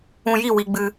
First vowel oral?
no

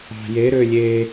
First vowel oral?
yes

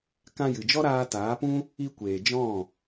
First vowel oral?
no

